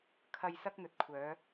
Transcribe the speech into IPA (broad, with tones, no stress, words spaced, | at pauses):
kʰɐ˨j sɐ˧k̚n̪ɵ˨t̚kʷʰœː˨˧